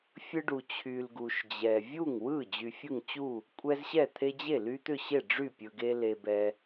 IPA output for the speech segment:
fʲɯ˦ɖu˨t͡ɕʰy˨l ɡu˨ʃd͡ʑɛ˨ vʲu˥˩ŋwɯ˥˩ d͡ʑy˨fʲɯ˥˩ŋt͡ɕu˥˩ | kʷʼɛ˦zɕɛ˥˩t̪ʰe˦ d͡ʑe˥˩ly˦t̪ʏ˥˩ɕe˥˩ ɖ͡ʐy˥˩pʲɯ˨ɡe˦ le˨bɛ˨

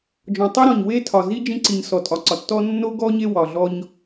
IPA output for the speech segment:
d͡ʒɔ̃˨tˤi˦ɾɔ̃˨ɲ we˦tʰɒ˨ zi˦ d͡ʒĩ˦ǀi˨ɲ sɔ˨tʼɒ˨ǀɒ˨tːɔ˦ nːo˦ɡɔ˦ ɲe˦wɒ˨ɮɔ˦ɲ

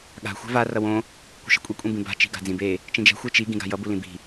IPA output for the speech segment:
ɠa̤ xʷɛ̤va rʌwõ | kʷi̤ʃɛ̤kʷʼi kʷʼĩbĩba̤ t͡ʃi̤ɡa̤d͡zĩbe | t͡ʃĩd͡ʒɛ̤ xʷet͡ʃi ɡĩɡa̤jʌ bulĩbi̤

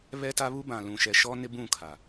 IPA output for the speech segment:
βɛ˦ta˦ βu˦bã˨lũ˨ ʃɛ˨ʃɔ˦nɪ˦ bũ˦˨kʰa˨

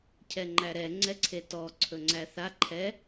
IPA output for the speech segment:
cʰɛŋ͡ǃæɾɛ ŋ͡ǀɛǀʰetɔ ǀʰɵŋ͡ǀæθa ǃʰɛ

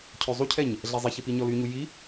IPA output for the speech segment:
cʰøzˤucʰɛɲ | ɮɛzˤiçi piɲɔlyɲu ji

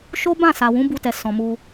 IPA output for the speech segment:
ʃo˦bã˦˨sa˨ wũ˨˦bu˧tɛ˨ sɔ̃˨ mu˧

